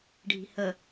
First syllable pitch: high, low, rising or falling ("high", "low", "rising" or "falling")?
low